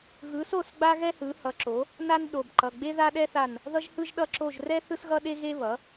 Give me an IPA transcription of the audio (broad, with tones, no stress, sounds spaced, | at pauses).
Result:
ɣ ɯ˩˥ s o˦˨ s ɡ͡b a˥ ɣ ɛ˥ h ɯ˩˥ h ʌ˩˥ ǁ o˩˥ | n a˥ n ɗ o˩˧˩ b ǃ ʌ˩˧˩ ɡ͡b e˥ ð a˥ ɗ ɛ˥ θ a˦˨ n | ð ʌ˥ ʒ h ɯ˥ ʒ ɗ ʌ˦˨ ǁ o˦˨ ʒ r ɛ˥ θ ɯ˥ s ɣ ʌ˥ ɗ e˥ ɣ e˥ β ʌ˩˥